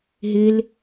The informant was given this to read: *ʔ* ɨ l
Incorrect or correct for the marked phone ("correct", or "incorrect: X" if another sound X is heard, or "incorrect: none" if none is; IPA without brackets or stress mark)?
incorrect: ɦ